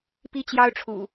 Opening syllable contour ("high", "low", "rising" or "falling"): high